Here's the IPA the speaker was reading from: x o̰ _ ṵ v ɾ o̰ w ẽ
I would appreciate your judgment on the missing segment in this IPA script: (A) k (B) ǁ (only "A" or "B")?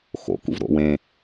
A